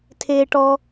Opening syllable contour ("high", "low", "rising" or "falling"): low